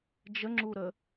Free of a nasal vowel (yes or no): yes